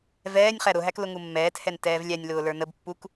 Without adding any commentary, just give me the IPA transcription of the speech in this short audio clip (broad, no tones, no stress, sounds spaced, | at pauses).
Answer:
v ɛː nʲ χ æ ɾ ʊ ɦ æ k l ʊ ŋ u mː ɛː t h ɛ n t ɛː v lʲ æ nʲ l ʊː l ə˞ n ə b pː u k